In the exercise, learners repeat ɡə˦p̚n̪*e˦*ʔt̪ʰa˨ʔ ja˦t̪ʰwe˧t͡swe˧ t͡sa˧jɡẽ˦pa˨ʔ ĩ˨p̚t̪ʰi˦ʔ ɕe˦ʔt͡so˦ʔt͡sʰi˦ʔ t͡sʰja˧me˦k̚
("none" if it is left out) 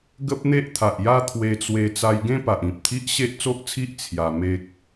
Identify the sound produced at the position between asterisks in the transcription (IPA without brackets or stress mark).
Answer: e˦